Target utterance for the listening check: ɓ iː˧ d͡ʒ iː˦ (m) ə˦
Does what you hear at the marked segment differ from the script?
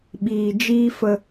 yes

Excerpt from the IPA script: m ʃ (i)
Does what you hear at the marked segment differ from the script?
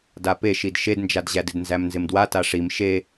yes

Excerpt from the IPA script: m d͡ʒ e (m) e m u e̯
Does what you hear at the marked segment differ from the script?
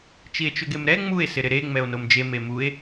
no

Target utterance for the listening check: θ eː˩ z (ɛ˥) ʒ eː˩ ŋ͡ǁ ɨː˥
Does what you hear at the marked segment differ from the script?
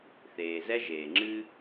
no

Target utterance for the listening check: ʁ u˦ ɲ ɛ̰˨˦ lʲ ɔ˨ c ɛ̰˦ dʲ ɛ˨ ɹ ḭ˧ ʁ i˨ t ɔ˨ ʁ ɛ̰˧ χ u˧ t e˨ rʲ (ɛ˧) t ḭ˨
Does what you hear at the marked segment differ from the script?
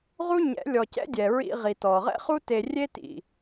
yes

